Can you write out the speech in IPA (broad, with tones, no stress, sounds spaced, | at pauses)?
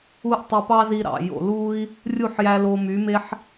u˦ ʔ tˤ ɯ˧ p ɑ˦ z i˧ ɾ ɑ̰˨ j o̰˨ l uː˦ i̯ | rʲ u˦˨ ħ j æ˧ l oː˧ m y˨˦ m e˦ ħ